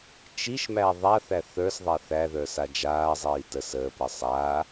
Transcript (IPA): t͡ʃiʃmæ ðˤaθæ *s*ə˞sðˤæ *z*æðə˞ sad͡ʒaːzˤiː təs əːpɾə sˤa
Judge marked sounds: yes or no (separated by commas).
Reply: no, no